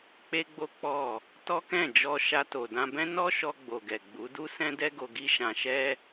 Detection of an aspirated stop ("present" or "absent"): absent